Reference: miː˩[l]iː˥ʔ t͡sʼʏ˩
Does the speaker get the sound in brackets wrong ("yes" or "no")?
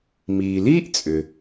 no